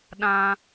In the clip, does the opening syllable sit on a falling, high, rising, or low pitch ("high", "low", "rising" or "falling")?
high